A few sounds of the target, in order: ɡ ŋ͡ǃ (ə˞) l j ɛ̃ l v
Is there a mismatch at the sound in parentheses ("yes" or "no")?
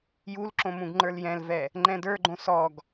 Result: no